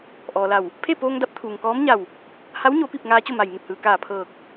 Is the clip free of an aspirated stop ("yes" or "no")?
no